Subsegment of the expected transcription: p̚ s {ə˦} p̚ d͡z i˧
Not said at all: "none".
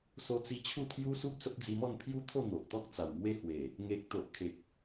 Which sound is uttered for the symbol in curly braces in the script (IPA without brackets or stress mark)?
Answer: ə˦